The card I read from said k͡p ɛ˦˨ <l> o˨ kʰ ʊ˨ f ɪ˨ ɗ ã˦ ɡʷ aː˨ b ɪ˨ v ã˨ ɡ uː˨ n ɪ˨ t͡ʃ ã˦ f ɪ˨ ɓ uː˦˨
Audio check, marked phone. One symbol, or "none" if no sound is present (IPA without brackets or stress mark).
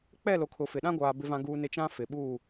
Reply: l